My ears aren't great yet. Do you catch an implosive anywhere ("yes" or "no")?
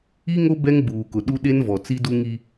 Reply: yes